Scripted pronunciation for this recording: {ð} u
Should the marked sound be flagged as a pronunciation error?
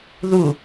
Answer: no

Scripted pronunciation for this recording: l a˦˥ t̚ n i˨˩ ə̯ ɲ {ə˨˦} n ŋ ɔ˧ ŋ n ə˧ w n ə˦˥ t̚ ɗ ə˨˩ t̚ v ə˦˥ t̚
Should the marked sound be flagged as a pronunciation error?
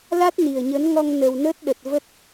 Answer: no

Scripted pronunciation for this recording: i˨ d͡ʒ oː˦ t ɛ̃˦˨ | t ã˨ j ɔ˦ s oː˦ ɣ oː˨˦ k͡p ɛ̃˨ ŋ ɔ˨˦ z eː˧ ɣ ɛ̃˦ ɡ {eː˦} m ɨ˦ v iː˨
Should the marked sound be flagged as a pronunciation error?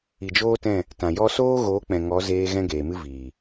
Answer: yes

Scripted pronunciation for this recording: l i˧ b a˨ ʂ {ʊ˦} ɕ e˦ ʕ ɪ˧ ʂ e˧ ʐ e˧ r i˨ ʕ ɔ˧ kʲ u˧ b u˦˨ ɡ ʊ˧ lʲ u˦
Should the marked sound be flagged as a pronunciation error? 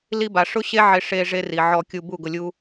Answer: no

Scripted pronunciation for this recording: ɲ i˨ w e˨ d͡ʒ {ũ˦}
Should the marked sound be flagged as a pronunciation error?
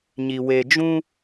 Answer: no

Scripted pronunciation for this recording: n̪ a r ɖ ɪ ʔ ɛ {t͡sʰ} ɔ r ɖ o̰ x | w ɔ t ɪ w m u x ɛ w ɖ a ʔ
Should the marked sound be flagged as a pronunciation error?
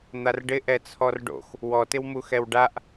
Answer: no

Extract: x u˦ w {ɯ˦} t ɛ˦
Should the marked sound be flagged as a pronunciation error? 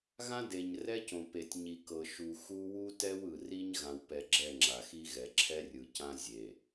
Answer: yes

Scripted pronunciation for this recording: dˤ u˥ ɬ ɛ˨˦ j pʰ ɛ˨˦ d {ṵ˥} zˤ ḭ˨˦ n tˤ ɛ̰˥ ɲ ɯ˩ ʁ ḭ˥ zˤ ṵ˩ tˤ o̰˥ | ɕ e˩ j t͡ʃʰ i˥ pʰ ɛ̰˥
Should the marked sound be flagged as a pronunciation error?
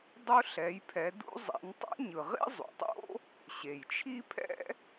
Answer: no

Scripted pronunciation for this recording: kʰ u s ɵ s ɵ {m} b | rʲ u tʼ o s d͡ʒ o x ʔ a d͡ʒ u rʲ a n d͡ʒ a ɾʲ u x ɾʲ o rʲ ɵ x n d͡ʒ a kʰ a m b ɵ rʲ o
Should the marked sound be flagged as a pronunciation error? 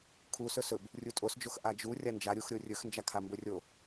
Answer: yes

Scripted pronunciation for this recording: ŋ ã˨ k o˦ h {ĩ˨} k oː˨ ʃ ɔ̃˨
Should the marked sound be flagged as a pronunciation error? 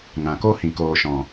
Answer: no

